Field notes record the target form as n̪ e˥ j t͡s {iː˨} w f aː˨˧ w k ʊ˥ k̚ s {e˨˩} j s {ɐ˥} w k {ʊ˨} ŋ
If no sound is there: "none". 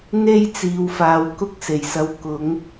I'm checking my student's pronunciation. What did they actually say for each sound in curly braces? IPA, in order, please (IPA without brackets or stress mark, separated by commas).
iː˨, e˨˩, ɐ˧, ʊ˨˥